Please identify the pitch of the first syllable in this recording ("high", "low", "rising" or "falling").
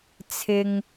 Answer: low